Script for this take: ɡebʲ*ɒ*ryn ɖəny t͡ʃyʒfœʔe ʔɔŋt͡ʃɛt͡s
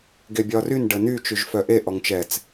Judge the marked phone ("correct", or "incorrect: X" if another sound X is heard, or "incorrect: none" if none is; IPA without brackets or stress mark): correct